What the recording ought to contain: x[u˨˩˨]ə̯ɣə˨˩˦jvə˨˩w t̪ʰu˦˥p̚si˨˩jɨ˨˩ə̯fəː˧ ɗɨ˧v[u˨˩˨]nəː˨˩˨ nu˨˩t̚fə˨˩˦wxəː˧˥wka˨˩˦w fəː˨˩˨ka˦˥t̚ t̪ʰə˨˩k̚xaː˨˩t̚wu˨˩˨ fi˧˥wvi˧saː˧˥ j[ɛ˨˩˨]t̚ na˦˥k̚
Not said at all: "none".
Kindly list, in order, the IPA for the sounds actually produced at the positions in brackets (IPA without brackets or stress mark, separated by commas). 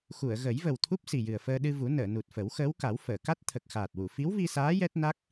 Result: u˨˩˨, u˨˩˦, ɛ˦˥